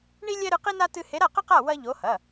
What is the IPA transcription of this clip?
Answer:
ɳ i˥ lʲ ɛ˥ ɾ ɨ˧˥ q i˥ n a˥ t ɨ˥ h e˧˥ ɾ a˥˨ q ɘ˥ q a˥˨ w ɐ˥ ʎ o˧˥ h ɐ˩˧˩

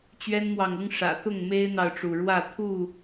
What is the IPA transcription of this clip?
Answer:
t͡ɕ ɥ ɛ˦ n m w ɑ˨ ŋ ʊ˦ ŋ ʂ ä̰˨˩ t̪ ʊ˥˨ ŋ m e˦ ɪ̯ n̪ ɑ˨ ʊ̯ ʈ͡ʂ u˩ ɻ w ä˥˨ t̪ʰ u˥˨

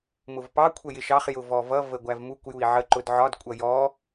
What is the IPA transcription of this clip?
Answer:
m ʊ v p ɑ kʷʰ ə j ɪ ʃ ɑ χ j ʊ v ɔ v ʌ v ə ɡʷ æ v m u kʷ j u i̯ ʕ ə ǃ ʊ d ʕ ɒ d kʷʼ ʌ j ɔ

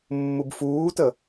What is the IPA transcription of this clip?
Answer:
mː u b f uː t ə

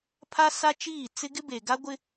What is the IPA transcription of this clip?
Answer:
pʰ a˦ s a˦ t͡ʃ iː˦˨ t͡s ɪ˦ ɡ ɪ˦ b e˨ ɡ a˦ ɡʷ ɪ˦

